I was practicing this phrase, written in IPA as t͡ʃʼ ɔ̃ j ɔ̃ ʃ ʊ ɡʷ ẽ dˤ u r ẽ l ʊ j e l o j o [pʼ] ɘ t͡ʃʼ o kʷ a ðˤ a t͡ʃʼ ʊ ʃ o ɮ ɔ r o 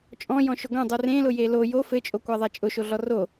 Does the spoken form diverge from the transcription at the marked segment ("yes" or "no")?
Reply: yes